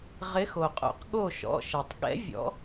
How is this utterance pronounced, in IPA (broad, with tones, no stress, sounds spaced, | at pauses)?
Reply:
ʁ ɪ˨˦ x o˩ qʼ o̰˨˩˦ q ɠ o˧˩ ʃ ɔ̰˩˧˩ ʃ ɛ˩ tˤ ɠ ɛ̰˨˦ vʲ ɔ̰˨˦